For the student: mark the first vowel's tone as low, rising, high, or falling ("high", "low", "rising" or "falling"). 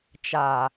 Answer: low